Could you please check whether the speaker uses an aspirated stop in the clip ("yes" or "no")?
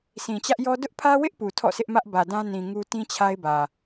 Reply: yes